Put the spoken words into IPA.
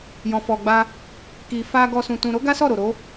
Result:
j ɔ̃˧ f ɔ˧ ɡ͡b a˦ | k i˧ f a˦ ɡ ɔ˦ s ũ˧ t ũ˧ ɾ o˦ ɡ a˦ s ɔ˦˨ ɾ o˨ ɾ o˨˦

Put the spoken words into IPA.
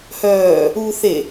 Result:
h œː | uː θ e

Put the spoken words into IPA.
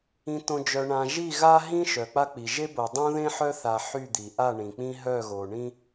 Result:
ĩ˨ t õ˨ d͡ʒ œ˨ ɳ ã˨ ʒ i˦˨ ɣ a˦ ɦ ĩ˦ ʃ œ˨ k͡p a˦ k͡p i˨ ʒ e˦ b o˨ dˤ õ˦ ð ẽ˦ ħ œ˦ θ a˦ ħ y˦˨ d̪ i˨ ʔ a˦˨ ɳ ĩ˨ k͡p ĩ˦ ɦ œ˦˨ ɣ o˨ ɳ ĩ˦

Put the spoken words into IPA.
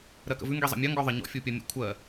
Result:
ɾ ɜ k ə̰ v ʉ ŋ ɡ i zˤ ə̰ mʲ ɐ ŋ ɡ ɔ ðˤ ə ɲ ɔ̰ fʲ u pʲ ɐ mʲ ə̰ kʷʰ ɜ

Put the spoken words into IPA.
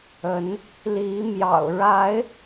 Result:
ə˨˦ n | l i˨˦ m j ɑ̰˨˩ ʊ̯ ɻ a˨˦ ɪ̯

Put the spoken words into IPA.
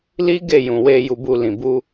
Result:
l i˦ ɡ e˦˨ j ũ˨ w e˧ j u˧ b u˧ l ĩ˨ b u˧

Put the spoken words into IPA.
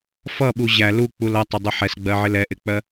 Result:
f ʌ ɓ u ʑ æ l u k͡p u l ʌ tˤ ɪ dˤ u ħ ɛ s ɡ͡b ɜ ʕ ɪ l ɛ ʔ ɪ k͡p ɜ

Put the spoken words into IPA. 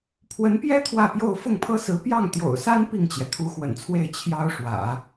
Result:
pʰ w ə˧˥ n p j ɛ˥ t̪ʰ w ä˥˧ p j o˥˧ ʊ̯ f ʊ˥˩ ŋ pʰ ɤ˥ s ɹ̩˧˥ p j ɑ˥˩ ŋ t̪ j o̰˨˩ ʊ̯ s a˥ n p i˥˩ ŋ t͡ɕ j ɛ˩ t̪ʰ u˧˥ x w ə̰˨˩ n t͡sʰ w e˥˩ ɪ̯ t͡ɕʰ j ɑ˥ ʊ̯ ʂ w ä̰˨˩˦

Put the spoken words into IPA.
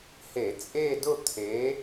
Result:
h e˧˩˧ t͡sʼ e˥˧ d ʊ˥˧ t̪ʰ e˨˥

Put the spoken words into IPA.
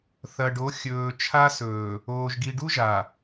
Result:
θ ɐ˨ ɖ o˨˦ xʲ ɵː˨ t͡ʃʰ a˦ s ɵː˨ | oː˨ ʒ ɡ i˨ ɖ u˦ ʒ a˨

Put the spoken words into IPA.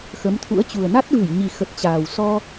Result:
x ə˨˦ m t̪ʰ ṵ˧˥ ə̯ t͡ɕ u˨˩ ə̯ n a˦˥ t̚ v ɨ˧˩ j ɲ i˨˩ x ə˨˩ t̚ t͡ɕ aː˨˩ w s ɔ˧

